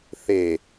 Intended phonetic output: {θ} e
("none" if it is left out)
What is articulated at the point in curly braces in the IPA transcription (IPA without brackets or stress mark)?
θ